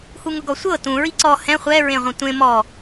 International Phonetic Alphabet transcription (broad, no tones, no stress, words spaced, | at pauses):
huŋʊɡɔsʷɤ tũ ɹiǀɔ hɛ̃ χʷɛ ɹẽʁʷĩtʷẽ mɔ